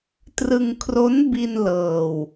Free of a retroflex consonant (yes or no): yes